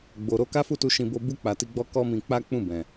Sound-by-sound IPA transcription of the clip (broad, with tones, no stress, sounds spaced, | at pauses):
ɡ͡b o˨ ɾ o˧ k a˦ f u˦˨ t u˧ ʃ ĩ˧ b o˧ b u˧ k͡p a˨ t i˧ ɡ͡b ɔ˦ k ɔ˦ m ĩ˧ k͡p a˦ k͡p ũ˦˨ b ɛ̃˨